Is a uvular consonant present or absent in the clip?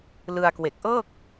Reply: absent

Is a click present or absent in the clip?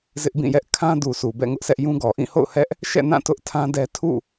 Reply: absent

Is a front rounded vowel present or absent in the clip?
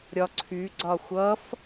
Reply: present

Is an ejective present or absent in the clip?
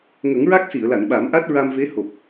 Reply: absent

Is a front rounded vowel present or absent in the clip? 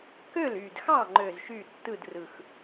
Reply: present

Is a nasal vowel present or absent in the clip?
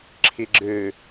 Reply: absent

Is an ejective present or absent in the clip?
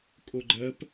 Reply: present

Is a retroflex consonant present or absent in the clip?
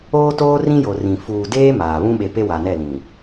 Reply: absent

